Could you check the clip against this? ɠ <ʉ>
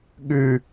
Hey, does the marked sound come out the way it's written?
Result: yes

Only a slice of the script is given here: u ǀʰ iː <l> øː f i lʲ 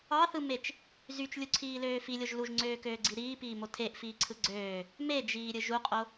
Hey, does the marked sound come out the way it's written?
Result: yes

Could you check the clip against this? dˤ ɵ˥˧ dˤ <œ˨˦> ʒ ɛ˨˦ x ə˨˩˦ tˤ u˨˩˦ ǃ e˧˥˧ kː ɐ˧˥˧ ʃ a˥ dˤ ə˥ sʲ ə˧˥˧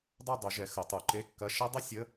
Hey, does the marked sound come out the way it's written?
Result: no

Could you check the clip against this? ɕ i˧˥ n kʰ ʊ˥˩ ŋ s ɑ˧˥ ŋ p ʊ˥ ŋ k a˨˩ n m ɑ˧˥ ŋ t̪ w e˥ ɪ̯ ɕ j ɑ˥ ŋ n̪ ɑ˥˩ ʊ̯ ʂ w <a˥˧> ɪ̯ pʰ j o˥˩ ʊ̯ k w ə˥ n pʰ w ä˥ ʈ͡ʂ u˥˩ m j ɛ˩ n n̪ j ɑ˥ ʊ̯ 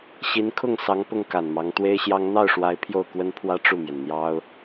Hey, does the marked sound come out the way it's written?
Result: no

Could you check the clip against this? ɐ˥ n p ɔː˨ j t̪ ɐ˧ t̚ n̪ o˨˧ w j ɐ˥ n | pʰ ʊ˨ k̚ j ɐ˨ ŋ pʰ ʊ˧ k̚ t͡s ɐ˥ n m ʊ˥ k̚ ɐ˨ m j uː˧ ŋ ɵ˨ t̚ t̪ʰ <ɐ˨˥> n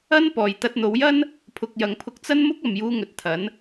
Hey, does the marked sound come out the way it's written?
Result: yes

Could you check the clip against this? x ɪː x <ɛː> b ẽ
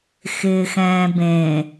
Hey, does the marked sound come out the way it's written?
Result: no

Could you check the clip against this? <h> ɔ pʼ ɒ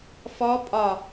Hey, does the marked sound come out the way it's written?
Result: no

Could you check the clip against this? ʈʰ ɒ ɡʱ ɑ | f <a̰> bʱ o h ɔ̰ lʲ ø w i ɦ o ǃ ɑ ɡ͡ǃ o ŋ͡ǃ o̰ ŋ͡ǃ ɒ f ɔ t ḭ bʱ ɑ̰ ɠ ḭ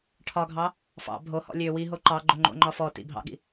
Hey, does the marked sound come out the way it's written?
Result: no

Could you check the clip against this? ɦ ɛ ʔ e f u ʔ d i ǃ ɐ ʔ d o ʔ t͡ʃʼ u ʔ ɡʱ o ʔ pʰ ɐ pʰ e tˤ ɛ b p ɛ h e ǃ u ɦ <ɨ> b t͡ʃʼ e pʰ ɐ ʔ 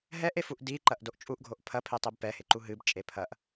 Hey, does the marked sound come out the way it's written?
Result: yes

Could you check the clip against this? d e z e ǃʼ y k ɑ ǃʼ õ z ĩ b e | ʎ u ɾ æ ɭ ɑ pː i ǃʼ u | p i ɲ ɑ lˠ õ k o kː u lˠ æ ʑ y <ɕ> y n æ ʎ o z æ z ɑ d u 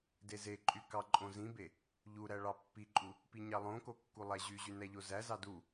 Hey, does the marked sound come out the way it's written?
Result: no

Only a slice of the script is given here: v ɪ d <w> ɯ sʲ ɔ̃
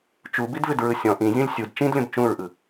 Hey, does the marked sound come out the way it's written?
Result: no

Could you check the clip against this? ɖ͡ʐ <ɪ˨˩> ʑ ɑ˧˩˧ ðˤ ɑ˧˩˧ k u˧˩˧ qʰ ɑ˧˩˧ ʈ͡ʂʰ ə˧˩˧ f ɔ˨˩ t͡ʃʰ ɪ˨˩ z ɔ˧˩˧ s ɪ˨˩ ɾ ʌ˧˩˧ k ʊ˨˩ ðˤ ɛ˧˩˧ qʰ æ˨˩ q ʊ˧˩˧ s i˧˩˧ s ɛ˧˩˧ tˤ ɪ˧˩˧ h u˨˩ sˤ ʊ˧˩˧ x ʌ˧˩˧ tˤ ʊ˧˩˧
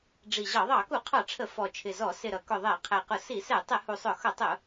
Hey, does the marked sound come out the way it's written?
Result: no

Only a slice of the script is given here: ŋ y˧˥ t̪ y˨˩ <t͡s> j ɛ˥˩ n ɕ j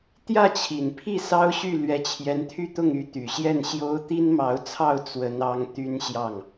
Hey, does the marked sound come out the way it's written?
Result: no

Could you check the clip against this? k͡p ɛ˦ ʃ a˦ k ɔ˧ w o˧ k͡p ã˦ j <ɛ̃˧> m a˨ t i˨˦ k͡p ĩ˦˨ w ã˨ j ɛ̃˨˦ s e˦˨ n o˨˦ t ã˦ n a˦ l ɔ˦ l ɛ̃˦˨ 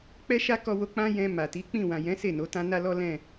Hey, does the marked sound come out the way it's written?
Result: yes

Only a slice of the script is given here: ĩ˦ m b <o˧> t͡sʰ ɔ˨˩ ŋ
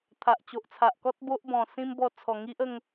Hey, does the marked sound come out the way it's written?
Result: no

